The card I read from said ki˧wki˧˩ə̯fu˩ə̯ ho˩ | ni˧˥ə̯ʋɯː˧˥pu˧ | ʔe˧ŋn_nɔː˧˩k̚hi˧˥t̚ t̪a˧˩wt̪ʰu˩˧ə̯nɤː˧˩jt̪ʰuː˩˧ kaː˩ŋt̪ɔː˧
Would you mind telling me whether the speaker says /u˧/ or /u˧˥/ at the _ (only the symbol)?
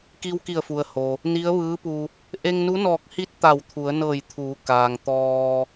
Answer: u˧˥